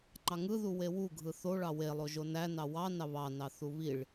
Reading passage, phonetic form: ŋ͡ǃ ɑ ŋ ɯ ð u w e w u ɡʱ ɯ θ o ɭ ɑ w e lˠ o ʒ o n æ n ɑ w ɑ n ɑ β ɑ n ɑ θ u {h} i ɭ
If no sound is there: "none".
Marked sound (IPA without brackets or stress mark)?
β